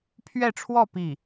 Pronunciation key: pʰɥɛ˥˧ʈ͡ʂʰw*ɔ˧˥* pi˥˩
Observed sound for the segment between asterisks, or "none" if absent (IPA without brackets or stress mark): ɔ˥˧